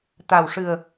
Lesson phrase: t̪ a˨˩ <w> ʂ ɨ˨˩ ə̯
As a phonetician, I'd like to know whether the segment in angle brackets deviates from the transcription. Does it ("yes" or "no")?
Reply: no